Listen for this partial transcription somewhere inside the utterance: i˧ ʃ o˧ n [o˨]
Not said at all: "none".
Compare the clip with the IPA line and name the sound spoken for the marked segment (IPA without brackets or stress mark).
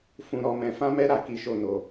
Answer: o˧